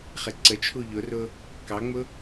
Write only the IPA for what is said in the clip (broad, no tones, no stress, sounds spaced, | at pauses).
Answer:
χ e ǀ ə t͡ʃʰ u ʎ ʊ r ʊ | k ɑ ŋ͡m ʊ